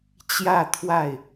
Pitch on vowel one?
falling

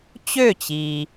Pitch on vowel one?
falling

